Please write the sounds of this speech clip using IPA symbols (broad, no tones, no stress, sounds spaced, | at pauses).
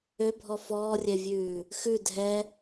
ø bʱ ɔ f ɔː rʲ ɛ vʲ ʉː | x ʉ dʱ ɛ